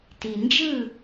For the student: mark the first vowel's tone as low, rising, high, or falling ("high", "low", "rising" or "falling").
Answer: low